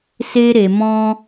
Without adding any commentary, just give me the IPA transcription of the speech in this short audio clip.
s e˦ ɾ e˧ m ɔ̃˦

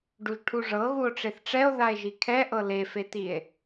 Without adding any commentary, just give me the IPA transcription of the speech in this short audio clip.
ɖ u ʒ ʈʰ u ʐ ɤ ɣ u o̯ ʈ͡ʂ e θ ʈ͡ʂ ɛ o̯ ð a e̯ ʒ i kʰ ɛ ʔ ɤ l e f e t i e̯

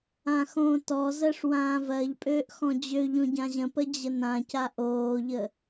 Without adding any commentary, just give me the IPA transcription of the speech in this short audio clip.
ã x õː t ɔ z ɜ ʂ w ãː v ɜ ʎ pʼ øː ʔ x ɔ̃ d͡ʑ ø ʎ õ ɟ ã ʑ ə̃ p ə d͡ʑ ə n ã c a ʔ oː ʎ ə

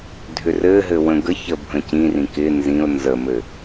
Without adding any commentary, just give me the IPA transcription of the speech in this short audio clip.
dʱ ʏ r ɘ ɦ ɘ w ə̃ ɡ ə ç ə bʱ ə̃ c ĩ r ĩ k ɪ n z ĩ ʊ̯ n z ə m ɘ

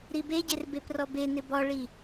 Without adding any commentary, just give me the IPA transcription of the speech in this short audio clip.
ɾ i b e ɟ ɪ r b e p r ɔ b e n ɪ b ɔ ɭ i

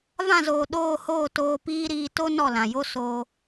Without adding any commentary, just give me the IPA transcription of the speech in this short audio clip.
v ã˦˨ z oː˨ ɗ oː˦˨ h oː˦˨ t oː˧ p iː˦ ɾ iː˧ t o˦ n ɔ˦˨ l ã˨ j o˦ s oː˧

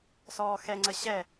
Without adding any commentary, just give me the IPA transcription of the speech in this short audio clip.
s ɔː x ɛ ŋ͡ǀ ə ɕ ɛ

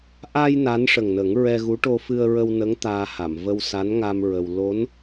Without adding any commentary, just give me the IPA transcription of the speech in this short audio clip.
ʔ a˧ j n a˧˥ n ʂ ə˨˩ ŋ n ə˨˩˦ ŋ ɹ ɛ˧ ɣ u˧˥ ʈ o˧ f ɨ˧ ə̯ ɹ ə˧ w n ə˧˥ ŋ t̪ aː˧ h a˨˩˨ m v ə˧ w s a˧˥ n ŋ a˧ m ɹ ə˧ w l o˧˥ n

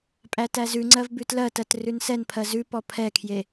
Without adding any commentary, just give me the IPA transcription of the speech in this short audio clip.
pʼ æ t æ z ʉ ŋ͡ǀ ɜ v b ʉ t l ɜ t ɜ t r ʉ n s ɛ n pʰ ɜ z ʉ p ɔ pʰ ɛ kʰ j e

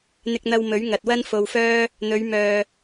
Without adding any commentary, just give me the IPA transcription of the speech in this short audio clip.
n̪ ɪ˧ k̚ n̪ ɐ˧ w m ɵ˨˥ ɥ ŋ ɐ˨ t̚ w ɐ˥ n f o˧ w f œː˥ | n̪ ɵ˨˧ ɥ m œː˨

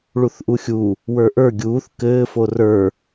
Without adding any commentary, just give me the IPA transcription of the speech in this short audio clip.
ɭ u θ ʔ u xʲ u | w ə˞ ʔ ə˞ ɡʲ uː θ k ɘː f o r ə˞

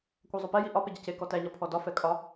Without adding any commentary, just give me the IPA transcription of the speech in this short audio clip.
kʷ æ zˤ o p ɛ j i ʔ ɒ p e ɟ a c e k ɔ t æ ɲ ɒ pʰ ɔ d ɒ f ɛ kʼ ɒ

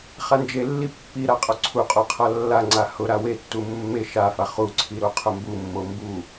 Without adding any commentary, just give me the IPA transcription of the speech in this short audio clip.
χ a n d͡ʒ e lː i pː i ɾ a qʼ o ǀʰ u qʼ o qʰ a lː a ŋ͡ǀ a h ʊ ɾ a w e tː u mː e ʃ a f a χ u ǀʰ i ɾ o qʰ ʊ m b u mː o m b u

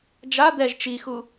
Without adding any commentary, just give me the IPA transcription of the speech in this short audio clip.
d͡ʒ a d̪ ɛ ʒ t͡ʃ i x u

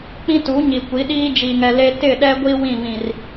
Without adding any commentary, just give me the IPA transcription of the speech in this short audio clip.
k͡p ĩ˦ t u˨˦ ɲ i˨ kʷ i˨˦ ɗ iː˦ d͡ʒ i˨ ŋ ɛ˨ l e˦ t ɪ˦˨ ɗ ɛ˦ ɡʷ i˦ w ĩ˦˨ v ĩ˨ r

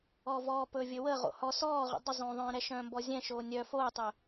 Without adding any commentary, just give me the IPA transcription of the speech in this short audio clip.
ɔ v ɔː p ɵ vʲ ɵ w ə ʁ o̰ h ɔ s ɔː ʁ ṵ dˤ ə zˤ õː ðˤ œ̃ː ɾ ɛ ʃ œ̃ː m b ɔ zʲ ɛ̃ ʃ oː nʲ œ f oː tˤ ɵ

